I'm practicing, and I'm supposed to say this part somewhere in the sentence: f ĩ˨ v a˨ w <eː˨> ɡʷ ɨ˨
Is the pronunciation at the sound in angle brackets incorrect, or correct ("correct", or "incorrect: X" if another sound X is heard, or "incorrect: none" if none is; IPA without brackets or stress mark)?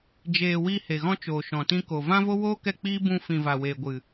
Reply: correct